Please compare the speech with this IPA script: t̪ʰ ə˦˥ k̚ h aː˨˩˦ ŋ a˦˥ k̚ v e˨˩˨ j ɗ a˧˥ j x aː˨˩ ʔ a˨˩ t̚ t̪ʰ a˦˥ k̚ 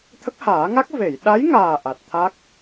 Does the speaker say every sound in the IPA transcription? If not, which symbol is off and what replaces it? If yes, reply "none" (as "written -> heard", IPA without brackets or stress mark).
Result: x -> ŋ